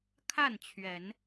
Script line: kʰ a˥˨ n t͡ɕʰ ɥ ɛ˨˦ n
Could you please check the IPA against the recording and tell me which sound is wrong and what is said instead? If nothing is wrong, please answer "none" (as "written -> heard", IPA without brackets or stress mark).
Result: none